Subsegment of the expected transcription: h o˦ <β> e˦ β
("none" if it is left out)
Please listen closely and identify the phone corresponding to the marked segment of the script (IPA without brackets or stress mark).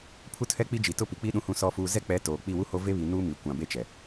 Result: v